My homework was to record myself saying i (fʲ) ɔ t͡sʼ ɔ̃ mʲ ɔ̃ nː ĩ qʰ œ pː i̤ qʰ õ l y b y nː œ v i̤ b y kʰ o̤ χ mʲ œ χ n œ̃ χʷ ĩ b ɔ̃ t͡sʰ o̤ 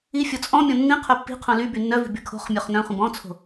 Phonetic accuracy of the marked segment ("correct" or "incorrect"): correct